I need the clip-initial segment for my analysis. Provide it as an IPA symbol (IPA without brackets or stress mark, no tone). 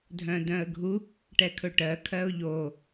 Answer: dʱ